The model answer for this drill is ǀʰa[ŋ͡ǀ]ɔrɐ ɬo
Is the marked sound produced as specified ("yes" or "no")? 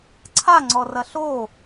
yes